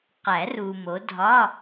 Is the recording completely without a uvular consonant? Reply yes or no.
no